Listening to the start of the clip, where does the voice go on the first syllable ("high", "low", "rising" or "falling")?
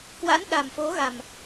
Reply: rising